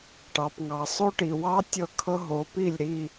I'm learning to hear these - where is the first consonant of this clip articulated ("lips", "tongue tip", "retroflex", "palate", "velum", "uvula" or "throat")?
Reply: retroflex